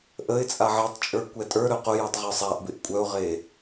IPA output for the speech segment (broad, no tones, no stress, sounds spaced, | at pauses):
ʔ ə ɪ̯ t͡sʼ a ʕ ɛ tˤ t͡ʃʼ ə˞ kʷ ɛ tʼ ə˞ ɾ œ q ʊ j ɔ tˤ ʁ ə˞ sˤ a ʔ b ɪ ʔ kʷʼ œ ʊ̯ ʁ e